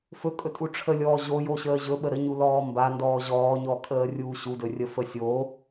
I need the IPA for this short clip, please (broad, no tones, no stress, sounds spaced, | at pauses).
f ɵ kʼ ɵ tʼ u ʈ͡ʂʰ ə lʲ ɔː ʑ o j o ɕ əː ʑ ɵ ɓ ə ɾ ə ɲ u l ɔː m b a n d ɔː ʑ ɔː ɲ ɔː kʼ əː rʲ uː ɕ u d ɵ rʲ ə f ə sʲ o